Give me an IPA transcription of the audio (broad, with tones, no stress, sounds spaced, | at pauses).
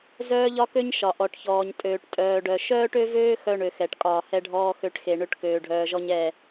z œː˦ ʎ ɒ˦ k ø˦ ɲ ʃ ɒ˨ ʔ ɔ˨ ʈ ç ɔː˨ ɲ tʼ øː˨ ʈ tʼ œː˨ ɖ œ˨ ʃ œː˦ ʈ ø˦ v øː˦ x œ˦ ɳ ø˨ x ɛ˨ ʈ kʼ ɒː˨ h ɛ˦ ɖʱ ɔː˦ x ø˦˨ ʈ x e˨ ɳ ø˦ ʈ k øː˨ ɖʱ œː˨ ʒ ɔ˦ ɲ ɛ˦˨